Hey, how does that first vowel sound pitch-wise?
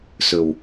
low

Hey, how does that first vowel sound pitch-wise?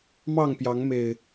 falling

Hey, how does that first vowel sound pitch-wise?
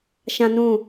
high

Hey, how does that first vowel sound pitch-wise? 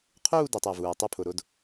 falling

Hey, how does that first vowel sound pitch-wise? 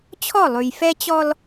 falling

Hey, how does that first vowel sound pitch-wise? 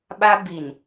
high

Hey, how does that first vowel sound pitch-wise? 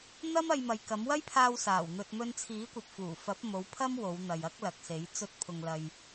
high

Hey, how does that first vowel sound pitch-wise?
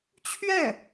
falling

